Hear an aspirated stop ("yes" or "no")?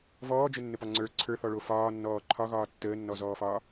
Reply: yes